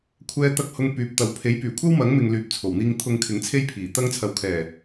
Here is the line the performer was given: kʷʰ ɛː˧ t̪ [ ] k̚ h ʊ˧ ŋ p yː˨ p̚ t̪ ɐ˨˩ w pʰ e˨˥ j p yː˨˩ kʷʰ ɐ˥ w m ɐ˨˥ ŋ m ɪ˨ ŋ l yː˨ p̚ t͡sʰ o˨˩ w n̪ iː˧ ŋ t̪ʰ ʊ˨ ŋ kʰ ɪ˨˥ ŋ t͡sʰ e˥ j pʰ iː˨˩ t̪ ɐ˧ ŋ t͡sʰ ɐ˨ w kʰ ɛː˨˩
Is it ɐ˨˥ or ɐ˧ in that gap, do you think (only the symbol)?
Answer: ɐ˧